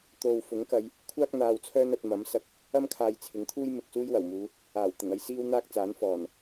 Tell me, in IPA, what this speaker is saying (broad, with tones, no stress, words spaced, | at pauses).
t̪o˨w fʊ˨˥ŋkɐ˨˧j | kʷʰaː˥k̚n̪aː˨w t͡sʰœː˥nɐ˧t̚ mɐ˨˥msɐ˧k̚ | ɐ˥mkʰaː˨j t͡sʰɪ˨˥ŋt̪ʰuː˥j mɪ˨k̚suː˥jwɐ˨˩wmuː˨˧ | aː˨˩w t̪ɪ˨˩ŋɐ˥j siː˥wn̪aː˥k̚t͡saː˨˥n fɔː˨˩n